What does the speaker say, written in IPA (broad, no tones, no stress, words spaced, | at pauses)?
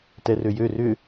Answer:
tɛrøjø rʏ